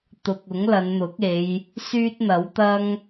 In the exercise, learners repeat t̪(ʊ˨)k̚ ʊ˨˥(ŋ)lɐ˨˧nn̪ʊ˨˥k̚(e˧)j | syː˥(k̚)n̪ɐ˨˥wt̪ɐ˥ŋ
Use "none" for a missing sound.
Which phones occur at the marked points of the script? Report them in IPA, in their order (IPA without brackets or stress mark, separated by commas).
ʊ˨, ŋ, e˨˧, t̚